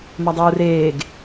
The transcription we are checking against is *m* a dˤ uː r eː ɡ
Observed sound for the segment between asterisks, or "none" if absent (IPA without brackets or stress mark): m